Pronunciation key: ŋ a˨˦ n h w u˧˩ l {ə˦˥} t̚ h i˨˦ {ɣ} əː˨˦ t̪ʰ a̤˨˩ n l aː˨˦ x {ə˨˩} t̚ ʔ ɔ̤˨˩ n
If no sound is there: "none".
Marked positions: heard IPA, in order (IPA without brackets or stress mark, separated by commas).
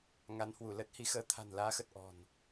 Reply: ə˦˥, x, ə˨˩